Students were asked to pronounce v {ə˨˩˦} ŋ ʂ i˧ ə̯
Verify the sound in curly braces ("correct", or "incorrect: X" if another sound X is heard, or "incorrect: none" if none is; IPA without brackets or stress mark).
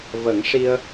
correct